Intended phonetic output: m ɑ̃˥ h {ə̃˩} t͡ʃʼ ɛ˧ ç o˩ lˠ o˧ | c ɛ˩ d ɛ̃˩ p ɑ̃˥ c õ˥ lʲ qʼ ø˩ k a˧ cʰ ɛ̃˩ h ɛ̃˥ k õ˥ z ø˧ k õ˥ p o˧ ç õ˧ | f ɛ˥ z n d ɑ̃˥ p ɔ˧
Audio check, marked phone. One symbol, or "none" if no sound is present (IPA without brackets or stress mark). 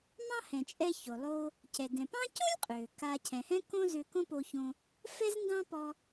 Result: ɛ̃˩